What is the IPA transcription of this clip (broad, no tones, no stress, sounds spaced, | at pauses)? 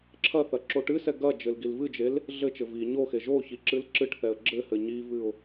ǁʰ ɐ θ ɐ ǁ o ʈ ɨ s ɛ ɡ ɐ d͡ʒ ɘ l ɡ i l v ɨ d͡ʒ e l | ɮ ɘ t͡ʃ ɘ v i ɲ o x e ʒ o ç i ǁ ɨ l ǁ ɨ ʈ θ ɛ ə̯ ɡ͡ǁ ɘ h ɘ ɲ i v ɨ ʊ̯